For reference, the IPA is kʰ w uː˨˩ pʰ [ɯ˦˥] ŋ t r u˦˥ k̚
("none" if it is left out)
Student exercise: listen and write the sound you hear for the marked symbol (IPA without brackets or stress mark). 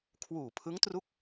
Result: ɯ˦˥